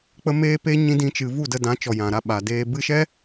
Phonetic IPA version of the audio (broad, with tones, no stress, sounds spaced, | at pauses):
k͡p ə˦ m eː˦ p e˦ ɲ ĩ˦ d ĩ˦ t͡ʃ ɨ˧ v u˦˨ d ə˧ d ã˨˦ t͡ʃ ɔ˨ j ã˨ ɾ a˧ ɓ a˨ d eː˧ b ɨ˧ ʃ ɛ˦